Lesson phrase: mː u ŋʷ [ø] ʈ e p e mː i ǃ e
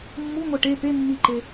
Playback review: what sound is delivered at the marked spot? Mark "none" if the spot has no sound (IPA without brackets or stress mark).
ɛ